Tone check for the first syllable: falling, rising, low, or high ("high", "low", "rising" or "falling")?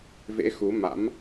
rising